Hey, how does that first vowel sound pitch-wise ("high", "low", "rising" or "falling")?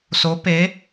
rising